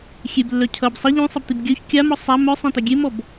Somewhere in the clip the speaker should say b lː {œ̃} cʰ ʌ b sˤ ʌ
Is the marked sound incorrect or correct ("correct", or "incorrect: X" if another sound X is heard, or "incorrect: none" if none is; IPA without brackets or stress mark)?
incorrect: œ